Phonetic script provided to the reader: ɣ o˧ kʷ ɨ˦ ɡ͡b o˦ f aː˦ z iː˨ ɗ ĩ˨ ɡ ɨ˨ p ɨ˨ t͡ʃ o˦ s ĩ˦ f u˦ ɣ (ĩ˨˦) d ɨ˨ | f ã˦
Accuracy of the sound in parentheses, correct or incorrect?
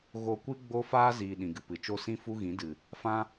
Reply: correct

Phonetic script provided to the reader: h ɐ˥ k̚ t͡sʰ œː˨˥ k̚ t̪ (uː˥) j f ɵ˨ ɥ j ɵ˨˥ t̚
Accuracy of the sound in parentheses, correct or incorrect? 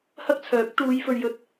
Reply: incorrect: uː˨˧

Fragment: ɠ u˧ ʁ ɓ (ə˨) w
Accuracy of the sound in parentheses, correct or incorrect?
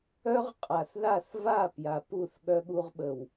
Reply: correct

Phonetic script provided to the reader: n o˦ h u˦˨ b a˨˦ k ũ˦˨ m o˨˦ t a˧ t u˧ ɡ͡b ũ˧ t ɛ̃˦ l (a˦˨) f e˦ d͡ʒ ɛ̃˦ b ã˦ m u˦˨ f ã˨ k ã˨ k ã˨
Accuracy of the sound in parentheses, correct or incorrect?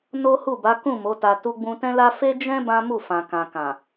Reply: incorrect: a˦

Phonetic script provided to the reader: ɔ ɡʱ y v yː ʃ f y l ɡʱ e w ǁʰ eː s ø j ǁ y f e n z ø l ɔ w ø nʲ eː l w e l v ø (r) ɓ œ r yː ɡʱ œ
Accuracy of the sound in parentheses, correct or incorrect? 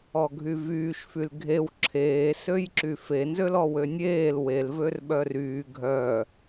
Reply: correct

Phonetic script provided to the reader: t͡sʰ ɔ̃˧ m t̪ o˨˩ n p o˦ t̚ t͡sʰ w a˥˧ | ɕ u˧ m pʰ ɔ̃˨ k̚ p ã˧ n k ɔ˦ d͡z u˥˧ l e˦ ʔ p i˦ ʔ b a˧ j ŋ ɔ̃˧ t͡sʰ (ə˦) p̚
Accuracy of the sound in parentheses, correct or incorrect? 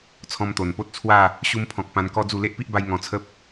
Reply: correct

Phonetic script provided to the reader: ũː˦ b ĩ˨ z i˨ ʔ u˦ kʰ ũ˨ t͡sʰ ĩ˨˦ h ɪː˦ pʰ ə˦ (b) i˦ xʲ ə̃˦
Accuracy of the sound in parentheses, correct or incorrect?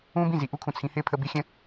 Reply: correct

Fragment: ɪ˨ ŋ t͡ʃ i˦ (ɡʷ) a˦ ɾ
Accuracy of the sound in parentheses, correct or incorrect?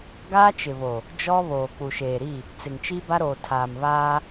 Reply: incorrect: b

